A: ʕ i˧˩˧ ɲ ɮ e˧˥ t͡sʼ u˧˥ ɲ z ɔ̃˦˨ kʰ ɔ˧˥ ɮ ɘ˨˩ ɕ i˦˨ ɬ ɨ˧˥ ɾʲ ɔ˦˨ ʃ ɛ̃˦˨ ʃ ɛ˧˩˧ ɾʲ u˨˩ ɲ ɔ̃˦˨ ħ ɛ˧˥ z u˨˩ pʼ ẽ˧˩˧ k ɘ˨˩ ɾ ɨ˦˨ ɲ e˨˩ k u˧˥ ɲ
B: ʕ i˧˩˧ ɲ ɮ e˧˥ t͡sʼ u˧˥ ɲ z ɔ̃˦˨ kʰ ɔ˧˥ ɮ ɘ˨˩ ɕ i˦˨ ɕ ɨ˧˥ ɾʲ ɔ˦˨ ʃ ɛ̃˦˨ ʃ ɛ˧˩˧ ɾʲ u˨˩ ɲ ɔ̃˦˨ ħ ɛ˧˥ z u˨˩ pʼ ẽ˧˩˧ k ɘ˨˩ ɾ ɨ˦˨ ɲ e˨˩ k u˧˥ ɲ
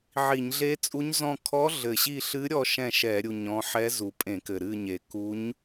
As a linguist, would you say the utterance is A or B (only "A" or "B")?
A